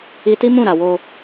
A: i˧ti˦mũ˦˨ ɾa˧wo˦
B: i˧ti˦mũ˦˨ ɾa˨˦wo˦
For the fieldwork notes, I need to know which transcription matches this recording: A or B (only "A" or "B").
A